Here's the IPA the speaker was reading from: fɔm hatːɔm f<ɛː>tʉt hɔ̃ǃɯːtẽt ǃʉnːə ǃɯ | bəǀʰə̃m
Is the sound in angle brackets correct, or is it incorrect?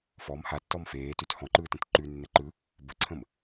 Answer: incorrect